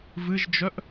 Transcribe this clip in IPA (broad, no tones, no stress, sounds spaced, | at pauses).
v ɨ ʒ d͡ʒ œ ʔ